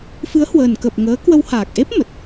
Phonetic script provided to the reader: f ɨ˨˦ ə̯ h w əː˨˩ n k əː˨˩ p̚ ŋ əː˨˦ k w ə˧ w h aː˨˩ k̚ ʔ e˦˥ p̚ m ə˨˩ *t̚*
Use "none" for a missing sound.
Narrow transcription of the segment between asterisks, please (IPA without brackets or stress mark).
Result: t̚